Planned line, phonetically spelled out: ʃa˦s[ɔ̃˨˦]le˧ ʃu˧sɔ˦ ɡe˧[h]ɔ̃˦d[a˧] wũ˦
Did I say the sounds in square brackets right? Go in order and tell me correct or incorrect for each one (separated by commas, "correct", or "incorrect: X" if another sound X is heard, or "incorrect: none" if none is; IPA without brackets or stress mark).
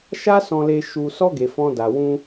incorrect: ɔ̃˧, incorrect: f, correct